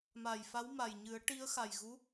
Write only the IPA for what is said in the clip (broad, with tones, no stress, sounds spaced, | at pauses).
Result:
m a˨˩ j f a˧˥ w m a˨˩ j ɲ ɨ˨˩˦ ə̯ ʈ i˧˥ ə̯ x a˨˩ j ɣ u˧˥